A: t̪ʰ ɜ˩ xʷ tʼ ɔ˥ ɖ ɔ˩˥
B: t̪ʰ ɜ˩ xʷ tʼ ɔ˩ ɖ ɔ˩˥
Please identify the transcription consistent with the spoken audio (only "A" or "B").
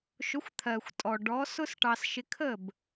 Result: B